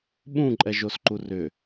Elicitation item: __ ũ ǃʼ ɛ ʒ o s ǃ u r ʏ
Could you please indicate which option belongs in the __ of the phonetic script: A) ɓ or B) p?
A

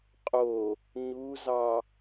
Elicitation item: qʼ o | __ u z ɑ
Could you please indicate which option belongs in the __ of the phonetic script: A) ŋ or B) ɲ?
B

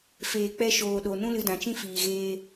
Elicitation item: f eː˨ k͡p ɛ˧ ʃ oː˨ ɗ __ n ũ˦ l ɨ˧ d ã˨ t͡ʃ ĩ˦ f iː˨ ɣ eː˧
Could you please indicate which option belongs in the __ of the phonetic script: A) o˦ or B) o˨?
B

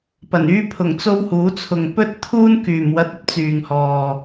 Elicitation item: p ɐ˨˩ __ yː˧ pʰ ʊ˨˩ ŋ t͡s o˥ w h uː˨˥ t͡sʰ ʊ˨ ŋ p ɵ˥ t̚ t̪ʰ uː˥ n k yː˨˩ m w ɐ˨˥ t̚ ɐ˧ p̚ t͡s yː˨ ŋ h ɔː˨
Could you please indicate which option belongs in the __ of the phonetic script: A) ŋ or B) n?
B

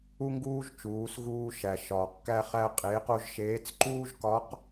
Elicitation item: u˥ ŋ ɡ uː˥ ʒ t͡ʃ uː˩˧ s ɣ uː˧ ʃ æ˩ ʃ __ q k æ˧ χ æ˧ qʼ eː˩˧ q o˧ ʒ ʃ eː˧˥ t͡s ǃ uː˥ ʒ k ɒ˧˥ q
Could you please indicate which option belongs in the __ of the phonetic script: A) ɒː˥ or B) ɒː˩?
B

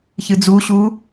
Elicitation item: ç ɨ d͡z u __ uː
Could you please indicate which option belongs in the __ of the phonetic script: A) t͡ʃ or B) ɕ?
B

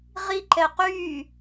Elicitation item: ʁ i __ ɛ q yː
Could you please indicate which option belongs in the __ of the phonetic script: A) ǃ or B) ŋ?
A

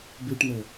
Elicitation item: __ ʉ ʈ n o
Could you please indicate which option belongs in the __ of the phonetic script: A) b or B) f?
A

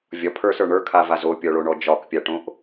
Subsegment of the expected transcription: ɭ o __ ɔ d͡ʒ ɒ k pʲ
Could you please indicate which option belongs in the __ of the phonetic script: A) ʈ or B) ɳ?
B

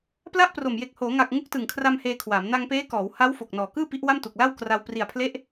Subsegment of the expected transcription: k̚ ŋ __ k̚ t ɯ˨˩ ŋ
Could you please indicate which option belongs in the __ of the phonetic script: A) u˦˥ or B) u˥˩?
A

